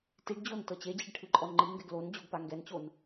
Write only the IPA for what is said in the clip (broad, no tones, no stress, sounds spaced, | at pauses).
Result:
t i ɖ d͡ʑ o n t ɤ t͡ɕ e d͡ʑ i ɖ ʈʰ ɯ ǃʼ ɔ n ŋ͡ǃ i ŋ ɡ ɛ ɡ l o n d͡ʑ o ɡ p a ŋ ɡ ɛ n t͡ɕ o n